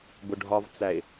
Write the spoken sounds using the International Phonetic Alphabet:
b ʊ ɖʱ ɒ v t͡s æ ɪ̯

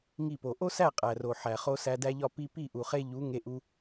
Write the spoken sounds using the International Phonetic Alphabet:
ŋ i˦˨ p o˨ ʔ o˦ s æ˦˨ qʼ æ˨ r o˨ ħ æ˨ χ o˧ s æ˧ d æ˦ ʎ ɒ˦ p i˧ p i˦˨ ʔ u˨ χ e˧ ʎ u˨˦ ŋ e˧ ʔ u˧

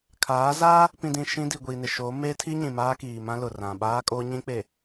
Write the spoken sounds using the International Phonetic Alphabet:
kʰ aː˨˦ z aː˦ | p ĩ˨ d ĩ˨ ʃ ĩ˦ d i˨ ɡʷ iː˨ n ɪ˨ ʃ oː˨˦ m eː˦ tʰ i˦ ɲ ĩ˨ m aː˦ k iː˨ m ã˦ l ʊ˨ r ã˨ ɓ aː˦ kʼ oː˦ ɲ ĩ˦ k͡p e˨

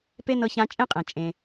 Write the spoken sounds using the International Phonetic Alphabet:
p e˥ n ɤ˧ ç ã˧ t͡ʃʼ ẽ˥ qʼ ẽ˩ t͡ʃʼ ẽ˩

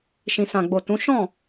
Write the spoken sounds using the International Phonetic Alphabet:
ʃ ĩ˨ s ã˨ ɡ͡b o˨ t ũ˨˦ ʃ ɔ̃˦˨

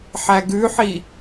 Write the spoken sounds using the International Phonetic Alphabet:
ħ æ ɡ ʉ ħ i

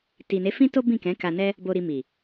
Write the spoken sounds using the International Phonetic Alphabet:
t i˨ n e˨˦ f ĩ˦ t o˦ b ĩ˦˨ k ɛ̃˨˦ k a˧ n ɛ˦ | b o˧ ɾ i˧ m i˨

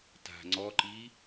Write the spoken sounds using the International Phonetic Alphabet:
t a̤ ŋ͡ǀ ɔ ǃ i

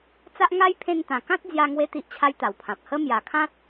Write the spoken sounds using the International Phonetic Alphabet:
t͡s a˦ ʔ ŋ a˦ j pʰ ẽ˧ n t̪ ã˨˩ k ã˦ t̚ d͡z j a˧ ŋ w e˧ t̪ i˦ ʔ t͡ɕʰ a˦ j t̪ a˨˩ w pʰ ã˨ p̚ h ə˦ m j a˨˩ kʰ ã˦ t̚

